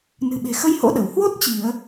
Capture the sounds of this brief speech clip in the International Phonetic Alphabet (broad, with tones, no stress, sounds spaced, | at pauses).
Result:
n ɨ̤˨˩ ɓ e̤˨˩ x ə˧ j h o̰˧˥ ɗ ə˧˩ w h w o˦˥ t̚ t͡ɕ i˧˩˨ ə̯